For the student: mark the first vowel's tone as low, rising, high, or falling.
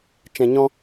low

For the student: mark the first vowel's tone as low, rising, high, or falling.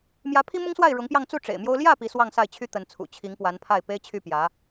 rising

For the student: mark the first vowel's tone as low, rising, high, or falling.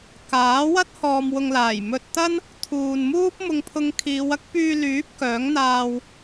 rising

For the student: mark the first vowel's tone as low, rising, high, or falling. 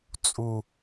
low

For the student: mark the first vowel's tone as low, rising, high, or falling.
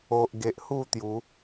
low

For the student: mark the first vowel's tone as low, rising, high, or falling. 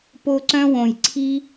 high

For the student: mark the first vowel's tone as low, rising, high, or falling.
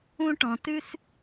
high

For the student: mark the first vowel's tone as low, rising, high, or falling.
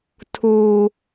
high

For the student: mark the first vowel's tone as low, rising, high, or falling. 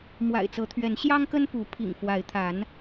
low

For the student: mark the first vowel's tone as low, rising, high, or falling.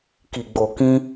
low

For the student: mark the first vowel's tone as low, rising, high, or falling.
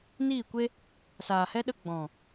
falling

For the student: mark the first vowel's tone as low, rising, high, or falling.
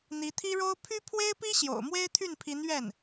rising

